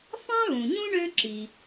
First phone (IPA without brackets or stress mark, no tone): f